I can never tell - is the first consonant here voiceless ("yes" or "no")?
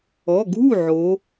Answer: no